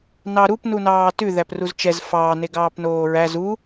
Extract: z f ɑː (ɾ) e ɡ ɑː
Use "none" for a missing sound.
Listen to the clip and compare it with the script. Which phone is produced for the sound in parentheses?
n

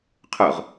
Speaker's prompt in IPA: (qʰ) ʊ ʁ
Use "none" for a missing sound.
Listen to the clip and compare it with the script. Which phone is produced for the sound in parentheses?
qʰ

